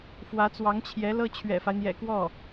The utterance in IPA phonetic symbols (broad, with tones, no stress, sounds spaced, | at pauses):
f w ä˧˥ t͡s w ɑ˧˥ ŋ t͡ɕʰ j ɛ˧˥ l ɤ˥ t͡ɕʰ ɥ ɛ̰˨˩ f a˦ ɪ̯ n̪ j ɛ̰˨˩ k w ɔ˥˩